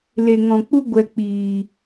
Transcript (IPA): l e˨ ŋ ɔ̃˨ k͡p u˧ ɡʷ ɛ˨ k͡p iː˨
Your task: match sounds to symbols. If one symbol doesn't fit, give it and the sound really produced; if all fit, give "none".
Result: ɛ˨ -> ɛ˧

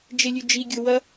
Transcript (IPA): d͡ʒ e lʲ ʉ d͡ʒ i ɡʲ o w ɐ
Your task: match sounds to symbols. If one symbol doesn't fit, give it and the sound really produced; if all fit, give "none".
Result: none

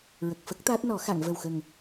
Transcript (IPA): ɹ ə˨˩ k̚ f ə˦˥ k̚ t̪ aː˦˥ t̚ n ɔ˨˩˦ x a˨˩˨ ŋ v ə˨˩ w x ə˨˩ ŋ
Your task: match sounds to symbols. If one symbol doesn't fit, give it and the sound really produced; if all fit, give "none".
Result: none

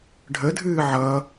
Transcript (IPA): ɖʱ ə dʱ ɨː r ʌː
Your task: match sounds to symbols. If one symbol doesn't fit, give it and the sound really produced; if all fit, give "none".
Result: r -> ʕ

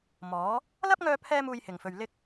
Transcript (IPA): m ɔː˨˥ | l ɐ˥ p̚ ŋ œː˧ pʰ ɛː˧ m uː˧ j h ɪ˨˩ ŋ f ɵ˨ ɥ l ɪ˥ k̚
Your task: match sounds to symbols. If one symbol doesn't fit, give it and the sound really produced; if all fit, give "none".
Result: none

